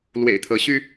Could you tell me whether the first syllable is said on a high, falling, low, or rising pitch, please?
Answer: low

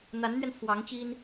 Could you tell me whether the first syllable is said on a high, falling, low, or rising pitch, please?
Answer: rising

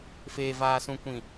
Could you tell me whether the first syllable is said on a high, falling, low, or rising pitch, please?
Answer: low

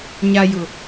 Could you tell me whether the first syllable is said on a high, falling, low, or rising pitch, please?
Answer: low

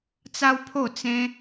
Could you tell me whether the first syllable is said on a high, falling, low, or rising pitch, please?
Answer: high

